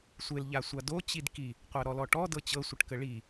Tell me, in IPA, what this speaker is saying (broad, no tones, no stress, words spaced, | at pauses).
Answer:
sʷel ʎasʷado t͡ɕidki | qʷaɾɔlɔʈɔ dɤt͡ɕɤ sʷəʈkəɭi